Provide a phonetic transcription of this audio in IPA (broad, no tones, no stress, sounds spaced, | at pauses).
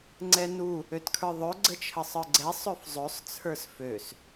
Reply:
ŋ͡ǀ ɛ n u | ø t kʰ ə˞ ðˤ ø ɡ͡ǀ ə t͡ʃʰ ə sˤ ə˞ ɡ͡ǀ ɛ sˤ ø f zˤ ø sˤ t͡sʰ ə˞ s f ø s